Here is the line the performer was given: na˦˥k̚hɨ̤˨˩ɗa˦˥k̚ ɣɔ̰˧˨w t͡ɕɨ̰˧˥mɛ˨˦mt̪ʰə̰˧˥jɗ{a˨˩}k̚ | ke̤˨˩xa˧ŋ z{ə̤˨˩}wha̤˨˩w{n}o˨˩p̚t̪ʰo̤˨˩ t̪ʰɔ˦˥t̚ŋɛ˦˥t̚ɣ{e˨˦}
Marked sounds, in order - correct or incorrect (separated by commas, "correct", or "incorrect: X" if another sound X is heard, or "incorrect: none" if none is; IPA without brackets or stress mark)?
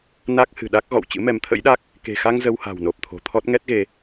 incorrect: a˦˥, incorrect: ə˧, correct, incorrect: e˧